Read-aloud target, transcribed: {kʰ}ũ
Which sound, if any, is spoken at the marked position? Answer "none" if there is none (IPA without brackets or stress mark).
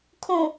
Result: kʰ